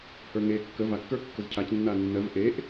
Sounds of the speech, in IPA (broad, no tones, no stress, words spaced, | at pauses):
hə˞ŋe kːə va kːə˞kːəzcʰac nːanːɜv ʔeʔ